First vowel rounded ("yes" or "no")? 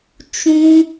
yes